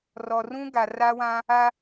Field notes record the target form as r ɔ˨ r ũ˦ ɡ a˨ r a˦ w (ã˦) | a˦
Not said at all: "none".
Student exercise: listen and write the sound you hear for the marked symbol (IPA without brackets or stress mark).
ã˦